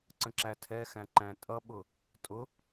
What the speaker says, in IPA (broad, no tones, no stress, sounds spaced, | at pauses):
ǀ ə̃ ǁ æ tʰ ɛ x æ̃ ǃ æ̃ tʼ ʌ ɓ ʊ | tʼ ʊ